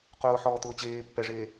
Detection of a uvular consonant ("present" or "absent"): present